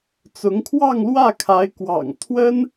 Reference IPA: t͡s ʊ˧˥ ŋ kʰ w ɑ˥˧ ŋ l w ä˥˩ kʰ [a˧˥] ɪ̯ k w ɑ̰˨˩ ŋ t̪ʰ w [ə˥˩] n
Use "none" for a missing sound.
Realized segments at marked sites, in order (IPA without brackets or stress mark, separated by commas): a˧˥, ə˥